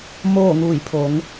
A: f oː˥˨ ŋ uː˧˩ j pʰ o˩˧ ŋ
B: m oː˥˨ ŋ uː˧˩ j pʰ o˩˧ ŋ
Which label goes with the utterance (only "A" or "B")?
B